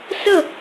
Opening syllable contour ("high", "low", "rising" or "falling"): falling